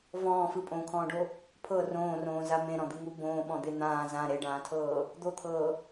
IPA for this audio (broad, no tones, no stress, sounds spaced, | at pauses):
v ɔ̃ː f ɯ pʼ õː kʰ ɔ̃ː ɖ o | pʰ ɤ r õː r õː z a m ẽ ɾ ɔ̃ d̪ ɯ ŋ u b õː ɓ ɔ̃ d̪ e n̪ ãː z ã ɾ e ɖ ãː tʰ ɤː | d̪ o t̪ʰ ɤː